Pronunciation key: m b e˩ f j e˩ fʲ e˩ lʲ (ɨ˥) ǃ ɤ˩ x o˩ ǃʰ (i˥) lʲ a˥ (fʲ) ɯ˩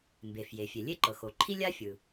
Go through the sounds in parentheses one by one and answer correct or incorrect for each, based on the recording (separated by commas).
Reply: incorrect, correct, correct